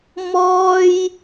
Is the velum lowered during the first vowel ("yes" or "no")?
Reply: no